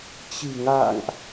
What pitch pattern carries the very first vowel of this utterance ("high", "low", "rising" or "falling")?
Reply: low